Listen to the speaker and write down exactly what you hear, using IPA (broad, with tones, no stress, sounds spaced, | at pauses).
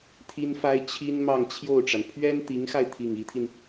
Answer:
t̪ʰ i˥ n f a˥ ɪ̯ t͡ɕʰ i˥ n m ɑ˥˧ ŋ t͡ɕʰ j o˥˩ ʊ̯ ʈ͡ʂ a˩ n pʰ ɥ ɛ˥ n t̪ i˧˥ ŋ x a˧ ɪ̯ t̪ʰ i˥˩ ŋ i˧˥ t̪ʰ i˧ n